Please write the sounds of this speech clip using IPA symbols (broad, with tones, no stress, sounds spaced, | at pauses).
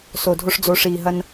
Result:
s o˨ dʱ o˧ ʂ d͡z o˨˦ ʂ iː˨ ɦ ɐ˧ n